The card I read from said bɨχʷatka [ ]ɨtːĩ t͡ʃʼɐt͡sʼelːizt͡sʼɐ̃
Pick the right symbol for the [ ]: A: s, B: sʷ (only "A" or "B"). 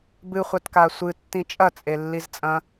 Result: B